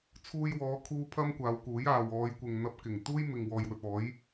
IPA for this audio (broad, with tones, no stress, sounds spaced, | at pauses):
t͡sʰ uː˧ j w ɔː˨˧ kʰ uː˧ pʰ ɐ˥ m kʷ aː˨˧ w k uː˨˥ j aː˨ w ɔː˨˧ j kʷ ɪ˨ ŋ n̪ ɐ˧ p̚ k ɪ˨˩ ŋ t̪ uː˥ j m ɪ˨ ŋ w ɔː˨ j w ɵ˨ t̚ ɔː˨˥ j